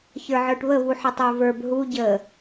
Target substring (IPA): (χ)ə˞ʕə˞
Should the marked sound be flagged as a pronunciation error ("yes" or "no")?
yes